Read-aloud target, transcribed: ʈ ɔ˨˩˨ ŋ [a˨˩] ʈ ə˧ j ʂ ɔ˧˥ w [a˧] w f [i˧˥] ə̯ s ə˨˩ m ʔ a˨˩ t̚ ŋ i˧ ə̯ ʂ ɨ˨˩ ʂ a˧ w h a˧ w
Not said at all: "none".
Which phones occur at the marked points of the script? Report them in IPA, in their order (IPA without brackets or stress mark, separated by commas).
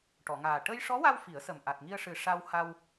aː˨˩, a˧, i˨˩˦